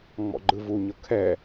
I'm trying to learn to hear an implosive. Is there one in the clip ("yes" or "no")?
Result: no